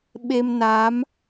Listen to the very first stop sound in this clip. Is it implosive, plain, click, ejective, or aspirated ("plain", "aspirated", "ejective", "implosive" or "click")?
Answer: implosive